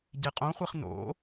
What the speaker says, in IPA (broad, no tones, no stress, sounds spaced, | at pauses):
ɟ e qʼ õ χʷ e χ n o̰